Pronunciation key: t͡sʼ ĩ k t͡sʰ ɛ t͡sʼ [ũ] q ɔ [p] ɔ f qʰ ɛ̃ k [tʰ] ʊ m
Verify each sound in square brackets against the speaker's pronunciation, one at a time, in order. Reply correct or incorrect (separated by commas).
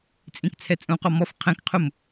correct, incorrect, incorrect